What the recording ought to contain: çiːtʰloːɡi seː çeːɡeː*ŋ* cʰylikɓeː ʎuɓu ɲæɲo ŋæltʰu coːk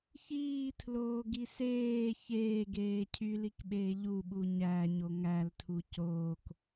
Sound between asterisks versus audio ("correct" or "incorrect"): incorrect